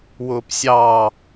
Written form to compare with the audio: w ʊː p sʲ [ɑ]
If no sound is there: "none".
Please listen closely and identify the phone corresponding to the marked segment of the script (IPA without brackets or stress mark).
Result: ɑ